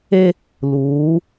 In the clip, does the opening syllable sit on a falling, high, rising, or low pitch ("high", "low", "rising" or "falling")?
high